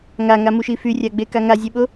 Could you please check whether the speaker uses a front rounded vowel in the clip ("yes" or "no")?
yes